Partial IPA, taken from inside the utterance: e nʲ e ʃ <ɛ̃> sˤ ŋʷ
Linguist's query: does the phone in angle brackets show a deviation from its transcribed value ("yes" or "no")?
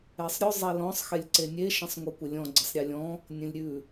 yes